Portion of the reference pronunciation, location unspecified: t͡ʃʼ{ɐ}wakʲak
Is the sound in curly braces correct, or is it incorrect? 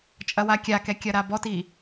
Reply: correct